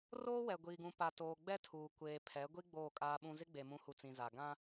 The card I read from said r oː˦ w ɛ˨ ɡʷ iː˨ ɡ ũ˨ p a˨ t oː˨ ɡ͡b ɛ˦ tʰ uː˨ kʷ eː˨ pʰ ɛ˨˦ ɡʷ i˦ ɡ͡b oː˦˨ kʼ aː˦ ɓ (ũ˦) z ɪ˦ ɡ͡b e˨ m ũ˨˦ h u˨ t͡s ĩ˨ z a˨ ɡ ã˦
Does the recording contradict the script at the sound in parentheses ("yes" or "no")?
no